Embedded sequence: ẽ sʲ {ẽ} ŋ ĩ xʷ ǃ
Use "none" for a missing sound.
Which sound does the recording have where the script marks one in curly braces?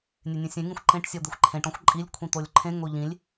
ẽ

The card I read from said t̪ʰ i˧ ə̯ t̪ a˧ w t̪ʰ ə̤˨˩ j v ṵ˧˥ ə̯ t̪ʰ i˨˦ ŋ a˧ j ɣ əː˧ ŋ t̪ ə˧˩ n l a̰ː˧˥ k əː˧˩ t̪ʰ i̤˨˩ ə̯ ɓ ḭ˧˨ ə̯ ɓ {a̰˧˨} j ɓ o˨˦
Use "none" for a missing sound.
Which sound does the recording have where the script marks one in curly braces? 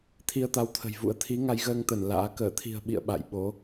a̰˧˨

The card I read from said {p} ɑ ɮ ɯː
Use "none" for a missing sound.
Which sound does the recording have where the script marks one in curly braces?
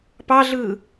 p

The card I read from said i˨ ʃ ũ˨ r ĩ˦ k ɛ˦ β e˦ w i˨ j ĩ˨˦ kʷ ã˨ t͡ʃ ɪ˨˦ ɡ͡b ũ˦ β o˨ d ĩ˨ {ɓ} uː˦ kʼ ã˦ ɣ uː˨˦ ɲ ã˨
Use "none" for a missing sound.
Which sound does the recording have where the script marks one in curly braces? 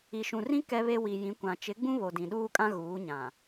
ɗ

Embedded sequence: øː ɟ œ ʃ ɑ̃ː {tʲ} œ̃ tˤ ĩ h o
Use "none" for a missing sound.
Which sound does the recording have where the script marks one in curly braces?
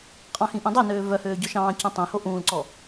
c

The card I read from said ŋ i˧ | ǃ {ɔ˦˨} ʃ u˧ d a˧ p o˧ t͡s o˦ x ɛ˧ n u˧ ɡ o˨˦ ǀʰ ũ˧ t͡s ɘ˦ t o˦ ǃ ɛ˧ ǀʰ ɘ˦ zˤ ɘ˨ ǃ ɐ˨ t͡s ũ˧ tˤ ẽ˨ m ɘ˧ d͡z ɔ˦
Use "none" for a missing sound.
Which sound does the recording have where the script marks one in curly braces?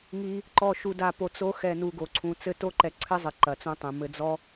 ɔ˦˨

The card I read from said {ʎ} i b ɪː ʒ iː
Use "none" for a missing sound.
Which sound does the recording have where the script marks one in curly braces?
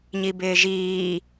ɲ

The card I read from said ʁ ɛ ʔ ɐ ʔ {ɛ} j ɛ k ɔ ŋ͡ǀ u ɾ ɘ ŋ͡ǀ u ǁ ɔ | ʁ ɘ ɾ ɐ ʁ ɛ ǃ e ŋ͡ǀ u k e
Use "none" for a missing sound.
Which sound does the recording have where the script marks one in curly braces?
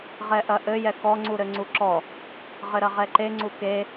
ɘ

